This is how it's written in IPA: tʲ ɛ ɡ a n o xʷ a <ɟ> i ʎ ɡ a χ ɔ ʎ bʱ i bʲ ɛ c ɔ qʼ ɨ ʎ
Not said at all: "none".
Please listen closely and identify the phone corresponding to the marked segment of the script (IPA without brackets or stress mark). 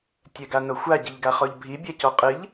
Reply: ɟ